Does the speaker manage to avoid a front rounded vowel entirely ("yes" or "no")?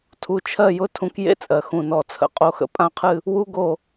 yes